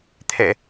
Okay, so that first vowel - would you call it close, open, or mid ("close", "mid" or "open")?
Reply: mid